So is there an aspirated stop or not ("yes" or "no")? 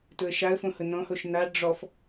no